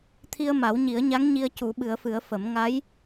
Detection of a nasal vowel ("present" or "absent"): absent